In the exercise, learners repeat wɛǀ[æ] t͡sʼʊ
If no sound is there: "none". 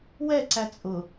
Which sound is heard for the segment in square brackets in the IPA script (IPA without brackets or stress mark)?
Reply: æ